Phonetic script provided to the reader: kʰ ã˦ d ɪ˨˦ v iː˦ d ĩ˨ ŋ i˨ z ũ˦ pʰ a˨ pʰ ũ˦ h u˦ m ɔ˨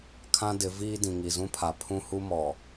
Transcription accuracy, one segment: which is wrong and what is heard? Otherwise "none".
none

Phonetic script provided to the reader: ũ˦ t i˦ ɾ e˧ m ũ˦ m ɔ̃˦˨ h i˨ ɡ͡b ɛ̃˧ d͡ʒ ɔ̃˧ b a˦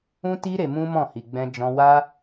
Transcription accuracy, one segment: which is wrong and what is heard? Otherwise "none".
b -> w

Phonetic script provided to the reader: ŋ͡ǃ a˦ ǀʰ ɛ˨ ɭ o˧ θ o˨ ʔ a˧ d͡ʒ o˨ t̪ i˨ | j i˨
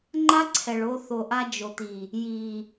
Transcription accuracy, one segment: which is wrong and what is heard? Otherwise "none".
none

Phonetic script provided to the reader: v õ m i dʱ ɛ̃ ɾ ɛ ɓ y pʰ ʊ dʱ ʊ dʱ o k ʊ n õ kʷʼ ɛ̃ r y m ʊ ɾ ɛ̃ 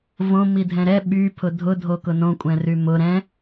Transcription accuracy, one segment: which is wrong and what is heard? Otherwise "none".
none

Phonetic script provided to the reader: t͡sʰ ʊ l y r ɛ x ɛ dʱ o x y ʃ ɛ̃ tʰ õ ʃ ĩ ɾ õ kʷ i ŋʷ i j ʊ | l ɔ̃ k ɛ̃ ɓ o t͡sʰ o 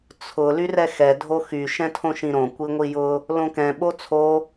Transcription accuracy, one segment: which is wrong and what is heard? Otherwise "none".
ɔ̃ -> õ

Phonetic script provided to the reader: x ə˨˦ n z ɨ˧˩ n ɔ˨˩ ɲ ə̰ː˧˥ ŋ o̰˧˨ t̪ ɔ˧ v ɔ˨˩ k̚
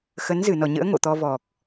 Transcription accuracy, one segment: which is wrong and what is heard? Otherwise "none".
none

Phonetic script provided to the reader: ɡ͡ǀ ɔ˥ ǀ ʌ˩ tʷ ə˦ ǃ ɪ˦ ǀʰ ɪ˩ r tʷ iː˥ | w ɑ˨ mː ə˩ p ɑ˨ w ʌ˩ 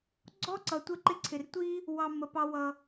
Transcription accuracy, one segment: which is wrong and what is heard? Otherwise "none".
none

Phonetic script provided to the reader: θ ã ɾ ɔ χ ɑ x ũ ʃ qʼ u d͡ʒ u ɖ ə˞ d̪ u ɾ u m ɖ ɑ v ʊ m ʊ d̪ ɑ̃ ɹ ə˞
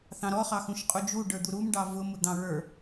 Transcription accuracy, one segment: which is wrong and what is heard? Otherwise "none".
ã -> ɑ̃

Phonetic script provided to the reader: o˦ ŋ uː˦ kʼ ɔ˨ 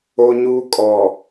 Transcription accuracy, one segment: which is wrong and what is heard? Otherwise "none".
ŋ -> ɲ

